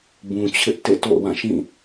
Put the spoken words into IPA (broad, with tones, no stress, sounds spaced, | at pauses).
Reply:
b ũ˨ t͡ɕʰ ɪ˦ ʔ t ḛ˦˨ t o̰˦˨ ʊ̯ w ã˦˨ ʃ ĩ˦˨